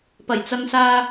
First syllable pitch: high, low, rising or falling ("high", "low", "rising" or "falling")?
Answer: low